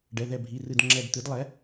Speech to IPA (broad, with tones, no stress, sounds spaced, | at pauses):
ɖ ɛ˩˧˩ ð ɛ˧˩ bʱ i˩˧˩ r ɨ˧˩ d ŋ͡ǁ ɛ˧˩ d t̪ ɨ˩˥ d lˠ ɛ˩˥